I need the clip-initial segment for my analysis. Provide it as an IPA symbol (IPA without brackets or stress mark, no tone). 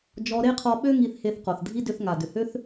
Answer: d͡ʒ